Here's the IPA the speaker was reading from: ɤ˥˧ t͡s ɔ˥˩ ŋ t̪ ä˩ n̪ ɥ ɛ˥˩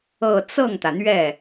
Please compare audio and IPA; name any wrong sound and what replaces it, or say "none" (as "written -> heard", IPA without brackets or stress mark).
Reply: ɔ˥˩ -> ɤ˥˩